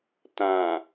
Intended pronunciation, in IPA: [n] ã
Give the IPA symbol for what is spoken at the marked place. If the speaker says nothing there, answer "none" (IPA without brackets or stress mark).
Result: t